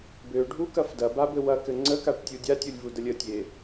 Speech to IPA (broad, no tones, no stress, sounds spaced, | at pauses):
b ø ɖʱ u k ɐ f d ɐ b a b ɘ w ɐ k ɘ ŋ͡ǀ ə k a ʈ tʲ u dʲ a tʲ u lʲ v u d ə lʲ ə tʲ e